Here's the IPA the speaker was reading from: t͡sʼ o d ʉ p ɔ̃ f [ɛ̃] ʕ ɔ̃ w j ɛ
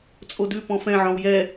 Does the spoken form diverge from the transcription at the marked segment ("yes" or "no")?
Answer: no